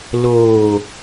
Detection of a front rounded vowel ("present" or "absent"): absent